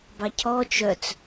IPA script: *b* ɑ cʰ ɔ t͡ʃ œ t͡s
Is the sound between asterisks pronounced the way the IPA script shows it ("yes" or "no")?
yes